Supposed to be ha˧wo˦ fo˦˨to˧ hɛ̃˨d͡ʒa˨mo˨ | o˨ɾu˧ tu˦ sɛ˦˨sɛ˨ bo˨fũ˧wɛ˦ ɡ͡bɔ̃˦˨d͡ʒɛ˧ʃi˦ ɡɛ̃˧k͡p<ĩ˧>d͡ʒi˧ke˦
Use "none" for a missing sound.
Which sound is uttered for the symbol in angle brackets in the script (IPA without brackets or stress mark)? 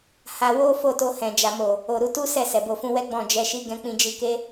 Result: ĩ˧